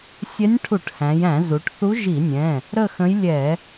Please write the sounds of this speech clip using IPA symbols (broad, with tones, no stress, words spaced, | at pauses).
sʲɛ˧˥nʲʈʰu˧˩˧ʈhæ̃˩˧jæ̃˧˩˧ zu˩˧ʈθu˧˥ʒi˧˩˧nʲɛ̃˩˧˩ | ɾə˥˧xə̃˧˥j lʲɛ˧˩˧